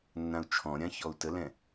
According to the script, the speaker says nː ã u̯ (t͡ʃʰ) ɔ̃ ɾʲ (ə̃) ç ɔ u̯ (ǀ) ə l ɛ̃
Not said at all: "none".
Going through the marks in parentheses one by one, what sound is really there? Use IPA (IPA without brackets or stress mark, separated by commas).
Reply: t͡ʃʰ, ã, t